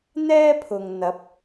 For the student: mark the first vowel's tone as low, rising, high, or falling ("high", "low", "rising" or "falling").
high